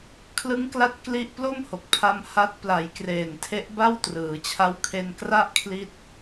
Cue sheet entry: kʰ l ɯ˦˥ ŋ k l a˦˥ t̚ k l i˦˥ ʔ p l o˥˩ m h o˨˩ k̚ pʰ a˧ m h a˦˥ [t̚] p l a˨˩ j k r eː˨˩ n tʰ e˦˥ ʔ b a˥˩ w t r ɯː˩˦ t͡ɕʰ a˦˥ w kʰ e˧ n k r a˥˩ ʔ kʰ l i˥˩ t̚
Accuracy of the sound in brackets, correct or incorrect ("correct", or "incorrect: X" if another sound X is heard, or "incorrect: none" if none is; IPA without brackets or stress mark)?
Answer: correct